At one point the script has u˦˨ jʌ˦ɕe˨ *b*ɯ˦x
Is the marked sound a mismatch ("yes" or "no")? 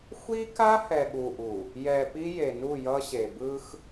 no